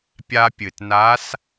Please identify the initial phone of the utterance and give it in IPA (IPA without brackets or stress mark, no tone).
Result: pʲ